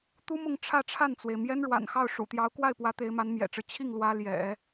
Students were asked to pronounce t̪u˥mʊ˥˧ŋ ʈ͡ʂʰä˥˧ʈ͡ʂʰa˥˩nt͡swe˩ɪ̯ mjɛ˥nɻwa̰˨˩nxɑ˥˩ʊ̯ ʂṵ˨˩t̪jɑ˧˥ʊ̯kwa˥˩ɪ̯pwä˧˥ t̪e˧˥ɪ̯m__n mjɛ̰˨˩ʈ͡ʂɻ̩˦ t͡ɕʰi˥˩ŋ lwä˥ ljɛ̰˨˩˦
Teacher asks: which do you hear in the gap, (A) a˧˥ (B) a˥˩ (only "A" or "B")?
A